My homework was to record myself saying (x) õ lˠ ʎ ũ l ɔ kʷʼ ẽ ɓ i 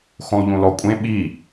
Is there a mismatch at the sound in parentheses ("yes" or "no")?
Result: no